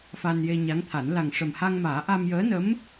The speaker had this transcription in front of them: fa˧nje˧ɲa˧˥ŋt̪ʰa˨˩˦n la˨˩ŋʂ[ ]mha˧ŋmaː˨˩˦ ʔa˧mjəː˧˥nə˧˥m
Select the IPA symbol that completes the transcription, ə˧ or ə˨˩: ə˨˩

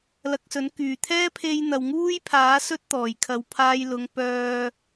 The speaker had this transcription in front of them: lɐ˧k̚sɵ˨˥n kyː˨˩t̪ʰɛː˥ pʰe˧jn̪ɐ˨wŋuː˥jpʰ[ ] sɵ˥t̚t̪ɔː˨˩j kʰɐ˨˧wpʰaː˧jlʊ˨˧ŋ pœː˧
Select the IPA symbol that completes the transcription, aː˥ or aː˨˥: aː˨˥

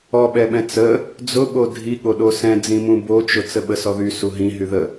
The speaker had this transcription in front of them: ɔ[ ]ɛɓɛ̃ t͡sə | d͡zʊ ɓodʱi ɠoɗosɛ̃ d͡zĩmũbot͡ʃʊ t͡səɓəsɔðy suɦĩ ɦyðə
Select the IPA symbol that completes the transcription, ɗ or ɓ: ɓ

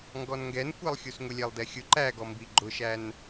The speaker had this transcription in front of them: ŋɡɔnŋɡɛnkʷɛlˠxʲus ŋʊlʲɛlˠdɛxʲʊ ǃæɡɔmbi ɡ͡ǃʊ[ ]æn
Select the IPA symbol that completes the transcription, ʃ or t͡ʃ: ʃ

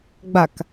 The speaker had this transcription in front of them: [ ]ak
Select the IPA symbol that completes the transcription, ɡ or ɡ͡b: ɡ͡b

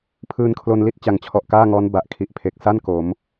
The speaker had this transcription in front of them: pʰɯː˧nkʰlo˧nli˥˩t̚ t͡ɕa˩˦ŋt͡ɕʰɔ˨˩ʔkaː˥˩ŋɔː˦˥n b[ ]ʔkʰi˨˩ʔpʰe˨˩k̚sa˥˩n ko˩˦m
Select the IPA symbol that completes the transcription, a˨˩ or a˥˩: a˨˩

